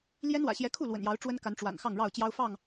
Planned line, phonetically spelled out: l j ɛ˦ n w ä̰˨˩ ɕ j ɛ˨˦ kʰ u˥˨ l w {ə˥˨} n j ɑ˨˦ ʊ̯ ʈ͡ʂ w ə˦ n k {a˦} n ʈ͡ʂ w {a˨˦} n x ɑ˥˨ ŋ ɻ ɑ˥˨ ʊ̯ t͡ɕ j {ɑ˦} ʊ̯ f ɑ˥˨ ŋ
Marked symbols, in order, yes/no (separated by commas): no, no, no, yes